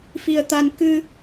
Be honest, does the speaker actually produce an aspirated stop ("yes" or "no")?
no